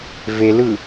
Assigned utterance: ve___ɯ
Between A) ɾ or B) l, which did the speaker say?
B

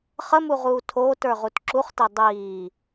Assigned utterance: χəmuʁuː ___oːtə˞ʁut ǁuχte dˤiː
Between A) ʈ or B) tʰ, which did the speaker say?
B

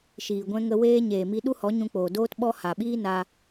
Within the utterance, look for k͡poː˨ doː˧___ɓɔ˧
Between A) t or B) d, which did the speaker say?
A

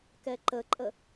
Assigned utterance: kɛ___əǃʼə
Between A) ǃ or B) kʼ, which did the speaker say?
A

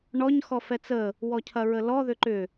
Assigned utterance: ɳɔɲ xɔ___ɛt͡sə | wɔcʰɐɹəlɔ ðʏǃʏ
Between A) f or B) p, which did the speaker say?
A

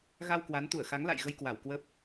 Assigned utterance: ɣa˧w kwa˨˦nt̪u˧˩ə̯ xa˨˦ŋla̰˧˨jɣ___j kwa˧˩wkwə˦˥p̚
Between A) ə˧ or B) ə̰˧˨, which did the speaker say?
A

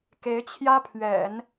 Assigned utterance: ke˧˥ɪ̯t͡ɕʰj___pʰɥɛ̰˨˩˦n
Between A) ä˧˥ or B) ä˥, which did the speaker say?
B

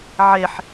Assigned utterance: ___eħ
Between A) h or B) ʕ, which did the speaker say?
B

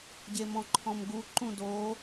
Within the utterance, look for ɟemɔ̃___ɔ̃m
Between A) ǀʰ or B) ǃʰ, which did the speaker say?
B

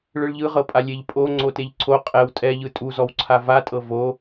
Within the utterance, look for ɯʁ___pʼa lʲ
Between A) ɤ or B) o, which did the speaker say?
A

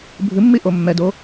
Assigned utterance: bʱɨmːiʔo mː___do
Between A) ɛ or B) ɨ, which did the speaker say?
A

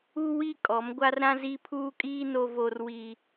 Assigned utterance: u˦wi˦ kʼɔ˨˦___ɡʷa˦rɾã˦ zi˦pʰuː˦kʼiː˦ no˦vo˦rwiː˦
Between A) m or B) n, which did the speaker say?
A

